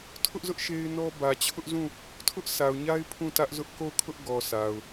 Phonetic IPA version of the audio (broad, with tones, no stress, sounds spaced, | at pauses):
tʰ ʊ˦ ʔ z ʊ˦ ʔ ʃ e˦ ɪ̯ n ɔ˦ b ä˨ t͡ɕʰ ʊ˦ ʔ z ũ˦˨ | tʰ ʊ˦ ʔ s a˨ ʊ̯ ɲ a˦ ɪ̯ pʰ ũ˦˨ t ä˦ ʔ z ʊ˦ ʔ k o˦˨ ʊ̯ kʰ ʊ˦ ʔ ɡ ɔ˨ sʰ a˨ ʊ̯